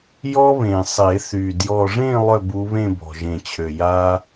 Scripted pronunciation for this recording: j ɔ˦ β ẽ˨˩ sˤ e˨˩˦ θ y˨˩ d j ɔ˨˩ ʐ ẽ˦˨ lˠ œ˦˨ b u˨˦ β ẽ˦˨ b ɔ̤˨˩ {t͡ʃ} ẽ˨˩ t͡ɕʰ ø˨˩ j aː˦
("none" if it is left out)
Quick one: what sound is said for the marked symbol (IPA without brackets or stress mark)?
ʒ